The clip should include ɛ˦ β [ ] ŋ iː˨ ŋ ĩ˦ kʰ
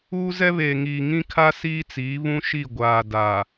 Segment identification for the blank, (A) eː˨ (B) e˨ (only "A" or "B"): A